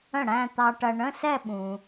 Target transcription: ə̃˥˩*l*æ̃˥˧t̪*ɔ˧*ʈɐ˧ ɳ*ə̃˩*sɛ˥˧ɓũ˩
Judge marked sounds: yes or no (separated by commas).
no, no, no